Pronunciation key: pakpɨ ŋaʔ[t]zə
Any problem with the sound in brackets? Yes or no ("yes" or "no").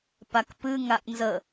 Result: yes